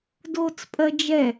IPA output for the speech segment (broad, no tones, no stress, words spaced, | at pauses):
doːt͡spʼɜd͡ʒɛ